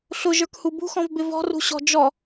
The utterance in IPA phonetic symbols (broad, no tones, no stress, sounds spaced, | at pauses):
ɬ ʊ ʒ ə˞ k h u b ṳ x ɔ̃ v b ɪ v ɔ̤ r ṳ ɕ ɔ̤ d͡ʒ ɔ